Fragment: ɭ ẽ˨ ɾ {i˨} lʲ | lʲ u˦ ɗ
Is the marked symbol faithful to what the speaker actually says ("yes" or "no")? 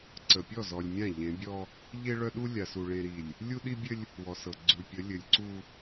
yes